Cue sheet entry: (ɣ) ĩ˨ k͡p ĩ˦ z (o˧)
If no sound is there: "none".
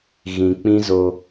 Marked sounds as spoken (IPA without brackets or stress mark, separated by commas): ɣ, o˧